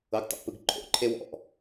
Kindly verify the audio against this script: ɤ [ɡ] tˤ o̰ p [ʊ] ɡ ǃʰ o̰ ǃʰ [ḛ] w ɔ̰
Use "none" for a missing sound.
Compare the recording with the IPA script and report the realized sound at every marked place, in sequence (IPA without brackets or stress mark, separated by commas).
ɡ, ɯ, e